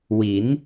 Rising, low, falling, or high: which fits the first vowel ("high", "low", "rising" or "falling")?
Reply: rising